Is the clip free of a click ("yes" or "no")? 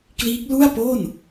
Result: yes